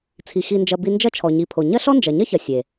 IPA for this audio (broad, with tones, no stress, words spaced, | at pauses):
t͡sʰi˨ xi˨nd͡ʒɐ˨ bi˧nd͡ʒɐ˦t͡ʃʰɔ˨ ɲi˨pʰo˨ ɲɐ˦ɬɔ˦nd͡ʒɐ˨ ɲɐ˦çɐ˨ sʲe˨